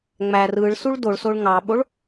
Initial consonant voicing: voiced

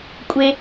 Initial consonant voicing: voiceless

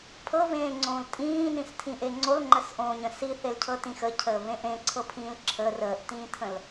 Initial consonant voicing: voiceless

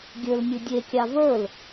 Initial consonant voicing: voiced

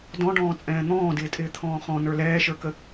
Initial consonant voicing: voiced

